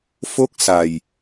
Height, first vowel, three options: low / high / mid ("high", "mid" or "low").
mid